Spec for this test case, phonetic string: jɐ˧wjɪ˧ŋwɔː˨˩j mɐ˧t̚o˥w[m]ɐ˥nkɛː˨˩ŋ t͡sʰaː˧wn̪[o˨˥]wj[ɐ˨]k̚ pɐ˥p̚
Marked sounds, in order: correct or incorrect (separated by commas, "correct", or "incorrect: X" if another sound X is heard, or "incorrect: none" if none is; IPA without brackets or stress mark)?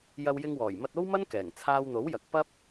correct, correct, correct